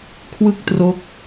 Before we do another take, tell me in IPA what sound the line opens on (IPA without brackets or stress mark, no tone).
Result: kʰ